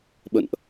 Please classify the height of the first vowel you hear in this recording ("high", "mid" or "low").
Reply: mid